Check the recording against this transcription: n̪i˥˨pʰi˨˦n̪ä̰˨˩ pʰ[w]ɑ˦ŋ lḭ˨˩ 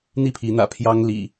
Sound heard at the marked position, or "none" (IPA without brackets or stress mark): j